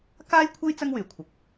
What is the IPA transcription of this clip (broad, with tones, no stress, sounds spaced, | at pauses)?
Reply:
k aː˥ j kʷʰ ɐ˥ j t͡s ɐ˥ ŋ w yː˨˩ kʷʰ ɐ˨ k̚